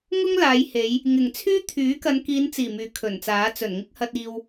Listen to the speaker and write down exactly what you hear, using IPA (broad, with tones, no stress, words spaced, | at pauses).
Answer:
ŋʊ˥ŋlaː˨˧jhe˨˧j | ŋɪ˨˩ŋt͡sʰyː˥ t̪ʰyː˨˥kɐ˨˧nkiː˨˧nt͡siː˨˩ myː˨˧kʰɵ˨˩nt͡saː˨˥ t͡sɵ˨˩nŋɪ˥k̚ hɐ˧t̚iː˧w